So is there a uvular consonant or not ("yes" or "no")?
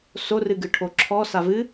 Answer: no